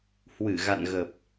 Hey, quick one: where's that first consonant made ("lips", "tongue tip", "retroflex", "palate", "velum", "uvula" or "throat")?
throat